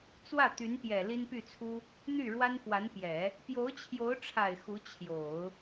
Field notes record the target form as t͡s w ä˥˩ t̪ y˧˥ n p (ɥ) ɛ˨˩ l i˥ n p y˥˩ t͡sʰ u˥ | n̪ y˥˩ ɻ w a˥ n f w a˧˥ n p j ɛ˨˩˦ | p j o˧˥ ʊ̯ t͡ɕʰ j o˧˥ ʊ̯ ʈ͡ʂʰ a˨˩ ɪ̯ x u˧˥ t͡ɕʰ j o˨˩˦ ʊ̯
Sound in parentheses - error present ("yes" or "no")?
yes